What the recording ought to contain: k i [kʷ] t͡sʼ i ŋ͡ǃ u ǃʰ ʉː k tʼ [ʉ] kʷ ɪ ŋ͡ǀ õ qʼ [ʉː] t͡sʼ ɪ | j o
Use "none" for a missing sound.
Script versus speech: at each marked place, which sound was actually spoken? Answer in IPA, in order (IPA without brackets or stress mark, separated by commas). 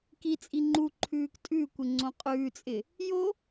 none, ʉ, ʉː